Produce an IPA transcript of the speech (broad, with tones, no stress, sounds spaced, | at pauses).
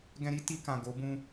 ɡ ɛ̃˧ ɾ i˦ t i˧ k ã˨ ɡ o˨˦ b ũ˦